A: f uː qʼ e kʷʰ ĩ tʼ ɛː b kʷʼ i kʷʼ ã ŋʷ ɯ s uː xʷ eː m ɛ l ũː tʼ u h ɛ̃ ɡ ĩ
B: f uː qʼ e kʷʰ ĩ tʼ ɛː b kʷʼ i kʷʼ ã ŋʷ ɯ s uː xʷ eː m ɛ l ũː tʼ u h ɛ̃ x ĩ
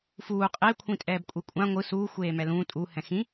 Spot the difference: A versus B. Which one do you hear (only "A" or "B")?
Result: B